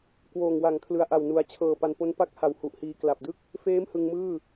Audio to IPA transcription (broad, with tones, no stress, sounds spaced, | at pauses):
k w oː˨˩ ŋ w a˨˩ ŋ kʰ l ɯ˨˩ a̯ ʔ a˨˩ w n u˩˦ a̯ t͡ɕʰ ɤː˨˩ p a˧ n p o˦˥ n p a˦˥ k̚ h a˨˩ w h u˨˩ ʔ h iː˧ k l a˨˩ p̚ d ɯ˥˩ k̚ | f eː˦˥ m h ɯ˧ ŋ m ɯː˥˩